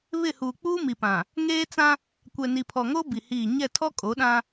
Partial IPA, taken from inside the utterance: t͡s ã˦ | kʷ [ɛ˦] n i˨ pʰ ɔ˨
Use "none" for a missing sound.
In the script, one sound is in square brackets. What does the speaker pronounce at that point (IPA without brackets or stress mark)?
ɛ˨